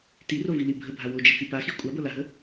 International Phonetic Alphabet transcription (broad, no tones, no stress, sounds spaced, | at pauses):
t i r o v i l i bʱ ə bʱ a w o d͡ʒ ə t͡s i p a x i kʷʼ a b ɤ l a ɦ ə